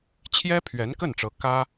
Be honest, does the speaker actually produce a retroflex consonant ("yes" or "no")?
yes